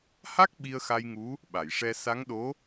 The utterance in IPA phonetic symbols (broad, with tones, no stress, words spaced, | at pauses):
ha˦˥k̚ ɓi˧ə̯xa˧jŋu˧˥ | ɓa˨˩˨jʂɛ˧ sa˧˥ŋɗo˧˥